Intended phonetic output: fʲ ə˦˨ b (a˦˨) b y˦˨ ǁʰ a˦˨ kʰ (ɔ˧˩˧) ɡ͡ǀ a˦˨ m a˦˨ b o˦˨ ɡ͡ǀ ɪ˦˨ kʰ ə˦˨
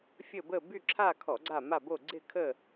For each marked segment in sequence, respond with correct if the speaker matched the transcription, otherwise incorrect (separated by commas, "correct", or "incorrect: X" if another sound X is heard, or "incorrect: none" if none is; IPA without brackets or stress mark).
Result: incorrect: ə˦˨, correct